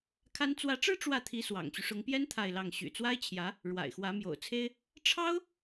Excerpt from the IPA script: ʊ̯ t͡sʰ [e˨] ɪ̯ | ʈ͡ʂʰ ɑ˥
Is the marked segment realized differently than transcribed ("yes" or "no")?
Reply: yes